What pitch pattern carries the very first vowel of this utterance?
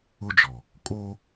high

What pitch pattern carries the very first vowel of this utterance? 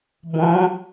rising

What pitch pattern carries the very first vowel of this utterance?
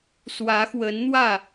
rising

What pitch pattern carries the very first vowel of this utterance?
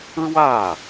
falling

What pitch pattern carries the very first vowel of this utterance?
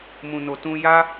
low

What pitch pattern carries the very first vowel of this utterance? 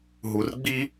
low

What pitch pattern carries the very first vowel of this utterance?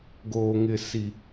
low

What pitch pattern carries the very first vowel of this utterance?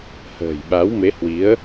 low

